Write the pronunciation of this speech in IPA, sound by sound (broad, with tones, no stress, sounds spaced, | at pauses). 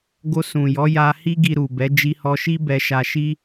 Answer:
ɡ o˧ s ũ˨ j ɔ˨˦ j a˧ h i˦ ɡ i˧ ɾ u˨ b ɛ˨˦ d͡ʒ i˧ h ɔ˧ ʃ i˦ b ɛ˧ ʃ a˧ ʃ i˦